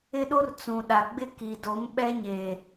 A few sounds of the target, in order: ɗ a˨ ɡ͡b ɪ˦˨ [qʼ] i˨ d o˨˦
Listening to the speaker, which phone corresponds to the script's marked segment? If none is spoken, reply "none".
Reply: k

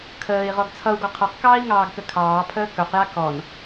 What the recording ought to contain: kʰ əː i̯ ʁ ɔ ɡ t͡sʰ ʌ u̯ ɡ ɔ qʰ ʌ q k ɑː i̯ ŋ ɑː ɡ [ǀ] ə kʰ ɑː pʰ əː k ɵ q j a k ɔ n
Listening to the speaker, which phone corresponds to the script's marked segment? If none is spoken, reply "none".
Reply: k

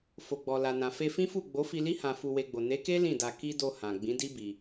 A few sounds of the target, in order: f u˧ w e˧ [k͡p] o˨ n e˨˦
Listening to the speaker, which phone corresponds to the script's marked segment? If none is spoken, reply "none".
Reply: ɡ͡b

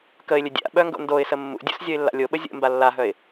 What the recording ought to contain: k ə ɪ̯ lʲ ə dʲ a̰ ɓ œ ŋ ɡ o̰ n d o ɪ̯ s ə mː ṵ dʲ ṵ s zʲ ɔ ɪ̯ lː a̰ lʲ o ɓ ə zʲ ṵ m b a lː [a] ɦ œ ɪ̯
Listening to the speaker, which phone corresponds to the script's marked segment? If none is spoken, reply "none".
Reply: a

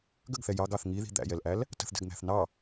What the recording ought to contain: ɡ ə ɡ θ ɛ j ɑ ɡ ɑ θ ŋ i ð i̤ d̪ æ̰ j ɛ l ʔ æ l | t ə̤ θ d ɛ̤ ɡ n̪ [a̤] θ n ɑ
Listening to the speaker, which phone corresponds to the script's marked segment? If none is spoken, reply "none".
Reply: æ̤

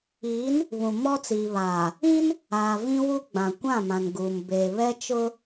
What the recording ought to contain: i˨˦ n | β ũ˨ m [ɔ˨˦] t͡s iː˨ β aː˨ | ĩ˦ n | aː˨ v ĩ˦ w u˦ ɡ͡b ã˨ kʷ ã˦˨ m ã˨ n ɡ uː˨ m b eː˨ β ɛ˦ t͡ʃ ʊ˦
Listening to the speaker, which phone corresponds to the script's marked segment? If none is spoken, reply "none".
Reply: ɔ˦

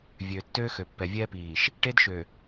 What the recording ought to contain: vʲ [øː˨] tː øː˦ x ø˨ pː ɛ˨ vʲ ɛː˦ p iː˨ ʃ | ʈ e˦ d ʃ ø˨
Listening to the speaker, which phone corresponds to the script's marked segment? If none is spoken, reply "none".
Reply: øː˨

